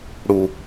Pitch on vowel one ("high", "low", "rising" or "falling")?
low